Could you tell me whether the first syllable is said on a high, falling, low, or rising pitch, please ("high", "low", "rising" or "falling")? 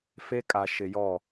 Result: high